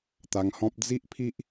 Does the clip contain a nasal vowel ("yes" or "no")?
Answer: yes